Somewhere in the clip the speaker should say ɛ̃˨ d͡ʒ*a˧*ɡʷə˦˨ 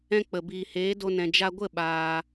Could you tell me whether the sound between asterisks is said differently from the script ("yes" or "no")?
no